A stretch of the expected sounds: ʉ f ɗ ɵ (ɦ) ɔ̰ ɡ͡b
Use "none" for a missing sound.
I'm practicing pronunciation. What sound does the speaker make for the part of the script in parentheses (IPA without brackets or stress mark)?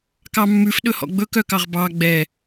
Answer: h